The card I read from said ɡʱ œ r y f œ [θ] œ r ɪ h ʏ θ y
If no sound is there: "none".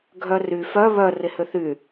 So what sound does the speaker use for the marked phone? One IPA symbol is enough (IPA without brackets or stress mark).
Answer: β